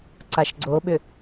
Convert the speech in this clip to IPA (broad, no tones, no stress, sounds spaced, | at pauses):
ǀ a ʃ ɡ͡ǀ o ɓ ʏ